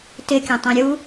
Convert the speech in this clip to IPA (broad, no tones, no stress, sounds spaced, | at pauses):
t ɪ kʲ ã tˤ ɛ̃ ɾʲ u